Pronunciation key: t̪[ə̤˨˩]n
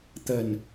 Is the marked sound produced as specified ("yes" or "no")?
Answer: yes